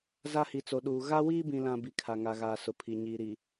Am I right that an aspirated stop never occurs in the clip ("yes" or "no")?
no